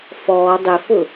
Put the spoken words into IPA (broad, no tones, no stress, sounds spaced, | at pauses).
f ɔː dˤ ɪ f ʊ